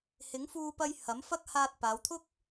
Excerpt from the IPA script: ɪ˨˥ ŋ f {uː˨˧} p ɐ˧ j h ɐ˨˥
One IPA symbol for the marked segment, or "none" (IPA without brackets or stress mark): uː˧